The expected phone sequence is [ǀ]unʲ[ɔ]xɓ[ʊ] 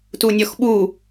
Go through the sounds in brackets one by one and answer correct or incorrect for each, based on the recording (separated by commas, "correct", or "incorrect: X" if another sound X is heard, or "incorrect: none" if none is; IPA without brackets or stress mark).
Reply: incorrect: t, correct, incorrect: u